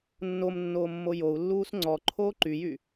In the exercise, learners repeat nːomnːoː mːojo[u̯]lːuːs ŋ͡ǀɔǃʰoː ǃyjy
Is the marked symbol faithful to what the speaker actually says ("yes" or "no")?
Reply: yes